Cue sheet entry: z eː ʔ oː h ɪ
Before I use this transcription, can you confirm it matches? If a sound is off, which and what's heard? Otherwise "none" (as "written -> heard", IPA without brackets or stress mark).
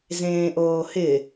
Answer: eː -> ẽː